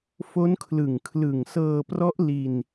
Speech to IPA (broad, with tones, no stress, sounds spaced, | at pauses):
f o˦˥ n kʰ l ɯ˨˩ ŋ kʰ l ɯ˨˩ ŋ s ɤː˧ p r ɔ˦˥ ʔ l i˧ n